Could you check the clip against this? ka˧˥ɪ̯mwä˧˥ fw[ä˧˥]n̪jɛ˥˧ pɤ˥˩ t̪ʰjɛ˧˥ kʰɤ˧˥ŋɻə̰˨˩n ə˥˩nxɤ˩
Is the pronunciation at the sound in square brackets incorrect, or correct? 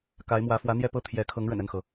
correct